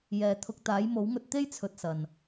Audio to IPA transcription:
jɛː˨˩t̪ʰʊ˨k̚ t̪aː˨˥jmo˨˥wŋɵ˧t̚ t̪e˥jt͡sʰɵ˨t̚ sɐ˨˩n

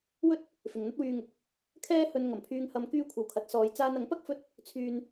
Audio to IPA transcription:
wɵ˥t̚ | fɪ˨ŋn̪ɐ˥t̚wyː˧ŋʊ˨˥k̚ | kʰɛː˥hɵ˧n ŋɐ˨˩mpʰyː˧ŋ hɐ˨˧mkyː˧kʷʰɐ˨˩w kʰɐ˨˥t̚sɔː˨˧j t͡saː˧nɐ˨˥ŋpɐ˥k̚ fɵ˥t̚ | t͡sʰyː˧n

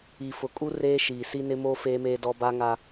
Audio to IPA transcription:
i˨fʊ˨kʼu˦ reː˦ʃiː˨si˦ nɪ˦moː˦ feː˦meː˦dɔ˦ ba˦ŋa˦

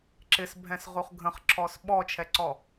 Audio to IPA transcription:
ǁɪsbʱɛ̃sʁuχ ɡʱə̃χǁʰɔs ɓɔt͡ʃʰɛǀɔ

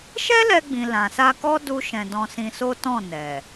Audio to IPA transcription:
ʃɛ˦lɛ˧ɡ͡bĩ˨ lã˨sa˧kɔ˦ du˦ʃɛ̃˧ dɔ̃˧sĩ˧so˦ tɔ̃˦˨nɛ˨

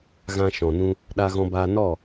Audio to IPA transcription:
ɣã˧ʃɔ̃˨nũ˧ | ɗa˧ɣɔ̃˧baː˧nɔ˦˨

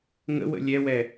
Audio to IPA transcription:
ŋə̰wə̰ lʲɛwɛ

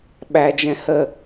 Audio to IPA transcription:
ɓæd͡ʒɛ̃ hə

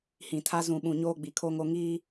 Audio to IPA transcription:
hĩ˨tʰa˦ zũ˨ɓũ˨ ɲoː˦ɡ͡bi˨kʰo˦ŋo˦ ŋiː˦

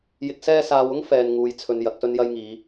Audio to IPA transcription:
jɪ˧k̚ sɛː˧saː˨wʊ˥ŋ fɛː˨nŋuː˨j t͡sʰɵ˨n jɐ˨˥k̚sɵ˥njɐ˥jŋiː˨˧

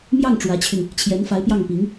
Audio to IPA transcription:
mjɑ˥˩ŋ ʈ͡ʂwä˧˥t͡ɕʰy˧n | t͡ɕʰjɛ˧˥nfa˧˥ɪ̯pjɑ˥˩ŋpi˧˥ŋ

